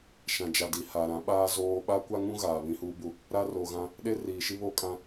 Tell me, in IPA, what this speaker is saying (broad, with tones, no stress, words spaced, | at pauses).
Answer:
ʃã˨d͡ʒa˨di˨ ha˨ɾã˨˦ɓaː˦ zoː˦ ɓa˦kʷa˦ŋũ˦ ɣaː˨βĩ˦huː˦bu˦ | ɾa˦ro˨ɣã˦ | ɗe˦riː˨ʃi˦ βo˦kʼã˦